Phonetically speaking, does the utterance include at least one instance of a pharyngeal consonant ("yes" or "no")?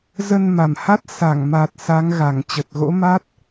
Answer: no